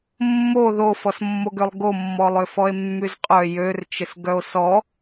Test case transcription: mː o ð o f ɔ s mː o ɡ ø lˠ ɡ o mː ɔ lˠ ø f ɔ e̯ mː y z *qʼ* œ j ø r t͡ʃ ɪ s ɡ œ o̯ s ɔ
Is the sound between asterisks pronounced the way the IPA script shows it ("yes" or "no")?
yes